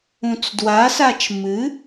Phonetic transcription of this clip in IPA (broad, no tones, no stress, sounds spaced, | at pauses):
ũ t͡s d w a s a t͡ʃ m ɨ